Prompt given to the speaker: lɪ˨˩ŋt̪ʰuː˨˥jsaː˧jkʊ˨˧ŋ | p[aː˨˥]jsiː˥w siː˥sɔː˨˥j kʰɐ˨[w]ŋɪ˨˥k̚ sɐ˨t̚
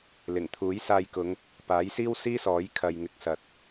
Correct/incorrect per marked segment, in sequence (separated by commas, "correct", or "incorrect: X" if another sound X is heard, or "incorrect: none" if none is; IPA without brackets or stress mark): correct, incorrect: j